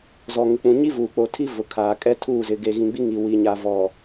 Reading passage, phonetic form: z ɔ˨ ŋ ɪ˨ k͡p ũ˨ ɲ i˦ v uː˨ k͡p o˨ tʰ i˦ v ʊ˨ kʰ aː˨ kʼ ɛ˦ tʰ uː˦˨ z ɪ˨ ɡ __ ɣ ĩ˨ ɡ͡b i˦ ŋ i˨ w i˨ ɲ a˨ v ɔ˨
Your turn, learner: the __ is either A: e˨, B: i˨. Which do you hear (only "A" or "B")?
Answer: A